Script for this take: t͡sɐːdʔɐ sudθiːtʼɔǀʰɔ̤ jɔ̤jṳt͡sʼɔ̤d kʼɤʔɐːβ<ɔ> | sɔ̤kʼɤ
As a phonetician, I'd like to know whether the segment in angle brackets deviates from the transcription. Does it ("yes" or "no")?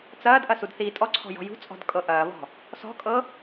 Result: yes